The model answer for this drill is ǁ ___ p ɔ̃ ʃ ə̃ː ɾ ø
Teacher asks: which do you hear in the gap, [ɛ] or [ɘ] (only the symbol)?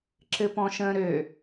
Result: ɘ